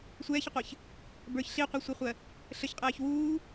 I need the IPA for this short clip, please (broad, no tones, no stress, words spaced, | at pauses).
sʷɛːçəqʷəːç | bə˞ç ɬiqʷɜsʷiχʷɜ | ɬəçqʼɛːç wuː